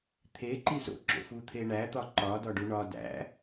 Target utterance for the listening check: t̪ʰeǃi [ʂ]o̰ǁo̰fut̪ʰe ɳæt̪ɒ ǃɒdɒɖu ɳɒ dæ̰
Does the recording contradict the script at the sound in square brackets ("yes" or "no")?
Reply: yes